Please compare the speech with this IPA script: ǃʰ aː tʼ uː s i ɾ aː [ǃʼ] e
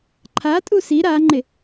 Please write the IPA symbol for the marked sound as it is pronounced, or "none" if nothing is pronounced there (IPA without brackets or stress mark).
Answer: ŋ͡ǃ